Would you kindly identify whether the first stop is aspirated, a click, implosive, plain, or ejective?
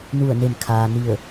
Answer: aspirated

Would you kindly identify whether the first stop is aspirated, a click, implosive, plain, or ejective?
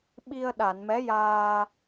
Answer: implosive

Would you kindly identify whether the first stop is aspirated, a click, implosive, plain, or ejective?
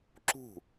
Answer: click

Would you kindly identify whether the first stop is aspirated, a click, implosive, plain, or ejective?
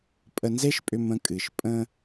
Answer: ejective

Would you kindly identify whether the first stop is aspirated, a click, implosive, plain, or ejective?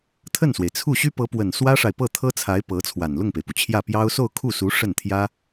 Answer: aspirated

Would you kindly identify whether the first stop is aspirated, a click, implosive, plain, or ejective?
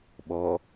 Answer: implosive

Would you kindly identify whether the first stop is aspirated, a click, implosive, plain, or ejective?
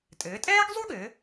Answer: ejective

